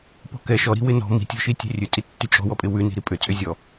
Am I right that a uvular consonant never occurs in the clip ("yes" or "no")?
yes